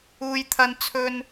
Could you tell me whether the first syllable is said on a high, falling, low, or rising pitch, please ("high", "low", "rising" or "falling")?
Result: high